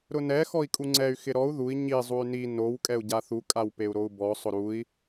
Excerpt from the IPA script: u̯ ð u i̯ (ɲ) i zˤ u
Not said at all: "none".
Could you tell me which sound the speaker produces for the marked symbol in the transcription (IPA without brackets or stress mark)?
ɲ